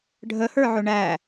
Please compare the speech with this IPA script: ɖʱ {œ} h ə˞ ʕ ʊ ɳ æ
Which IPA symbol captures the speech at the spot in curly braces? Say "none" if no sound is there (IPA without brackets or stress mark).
ə